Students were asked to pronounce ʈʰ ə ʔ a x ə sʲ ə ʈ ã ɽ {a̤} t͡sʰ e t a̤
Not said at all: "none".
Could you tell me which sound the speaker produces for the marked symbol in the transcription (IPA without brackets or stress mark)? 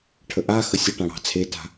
ɑ̤